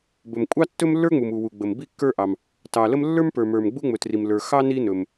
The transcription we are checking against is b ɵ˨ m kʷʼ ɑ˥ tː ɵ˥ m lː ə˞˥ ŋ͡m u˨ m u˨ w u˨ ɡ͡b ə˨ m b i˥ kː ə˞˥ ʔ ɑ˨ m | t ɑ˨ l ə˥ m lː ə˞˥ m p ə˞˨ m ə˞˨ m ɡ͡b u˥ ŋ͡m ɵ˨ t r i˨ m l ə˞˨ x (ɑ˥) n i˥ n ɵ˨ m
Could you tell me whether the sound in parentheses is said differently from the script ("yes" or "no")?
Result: no